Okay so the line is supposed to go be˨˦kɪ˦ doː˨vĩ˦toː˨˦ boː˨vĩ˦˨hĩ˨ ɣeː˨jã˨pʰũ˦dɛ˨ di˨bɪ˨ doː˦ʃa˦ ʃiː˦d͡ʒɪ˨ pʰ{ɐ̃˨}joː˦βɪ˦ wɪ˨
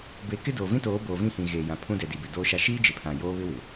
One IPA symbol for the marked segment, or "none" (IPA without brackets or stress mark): ã˨